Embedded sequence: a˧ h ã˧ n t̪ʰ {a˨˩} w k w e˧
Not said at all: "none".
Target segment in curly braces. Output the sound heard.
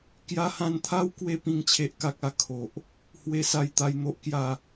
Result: a˦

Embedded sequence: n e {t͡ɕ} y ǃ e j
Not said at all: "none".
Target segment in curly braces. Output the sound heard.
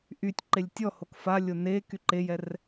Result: k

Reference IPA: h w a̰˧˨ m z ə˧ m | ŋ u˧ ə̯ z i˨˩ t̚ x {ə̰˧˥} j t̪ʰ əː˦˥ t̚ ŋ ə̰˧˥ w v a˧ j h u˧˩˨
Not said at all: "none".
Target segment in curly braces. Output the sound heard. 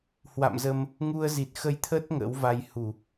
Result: ə˧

